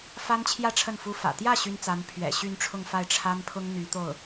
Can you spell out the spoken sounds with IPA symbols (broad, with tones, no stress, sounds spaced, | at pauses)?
f a˥ n t͡ɕʰ j ä˥˧ ʈ͡ʂʰ ə˥˩ n f u˥ f ä̰˨˩ t̪ j ä˥˩ ɕ y˥ n t͡s a˧˥ n pʰ ɥ ɛ̰˨˩ ɕ y˥˧ n ʈ͡ʂʰ ʊ˥˧ ŋ f a˥˩ ɪ̯ ʈ͡ʂʰ a˥ n pʰ ʊ˥ ŋ n̪ y˧˥ t̪ o˥˩ ʊ̯